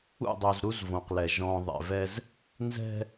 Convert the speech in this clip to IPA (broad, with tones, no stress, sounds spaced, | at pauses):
ṵ˦˨ dˤ o˨ z ɾ u˦ z v õ˨ q l ɛ˨ ʒ ɔ̃˨ ðˤ ɛ̰˨ v ɛ˦ z | n z ɛ̤˦